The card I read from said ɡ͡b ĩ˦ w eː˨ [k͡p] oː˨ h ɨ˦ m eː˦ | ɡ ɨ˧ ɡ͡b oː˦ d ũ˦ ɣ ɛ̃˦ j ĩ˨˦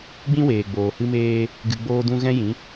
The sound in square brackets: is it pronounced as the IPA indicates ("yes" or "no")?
no